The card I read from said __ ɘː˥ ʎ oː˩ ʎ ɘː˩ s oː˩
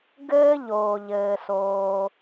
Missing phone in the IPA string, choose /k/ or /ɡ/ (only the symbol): ɡ